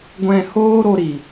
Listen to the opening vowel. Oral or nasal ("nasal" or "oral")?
nasal